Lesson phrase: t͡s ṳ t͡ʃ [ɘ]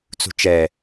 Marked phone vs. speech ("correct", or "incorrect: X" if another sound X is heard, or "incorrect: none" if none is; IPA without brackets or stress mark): incorrect: ɛ